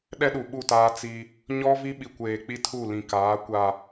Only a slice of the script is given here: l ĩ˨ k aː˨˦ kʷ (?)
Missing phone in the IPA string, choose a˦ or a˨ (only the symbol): a˨